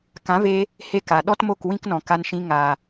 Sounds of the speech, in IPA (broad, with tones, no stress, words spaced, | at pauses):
kã˨˦ve˧ | he˦ka˨ ɗɔ˦tmo˦˨k wĩ˦knɔ̃˨ka˧nʃĩ˧ ŋa˨